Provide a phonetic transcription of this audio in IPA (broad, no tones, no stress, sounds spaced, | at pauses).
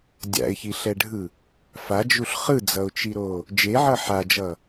dʲ a̰ ɪ̯ ç i ɬ ɛ ɖʱ ɯ | f a d͡ʒ u ɬ χ ɯ d͡z ʌ ʊ̯ t͡ʃ i ɾ o | d͡ʒ e ʕ ʌ ħ a d͡ʒ ʌ